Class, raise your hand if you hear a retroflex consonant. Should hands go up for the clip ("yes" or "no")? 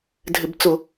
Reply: no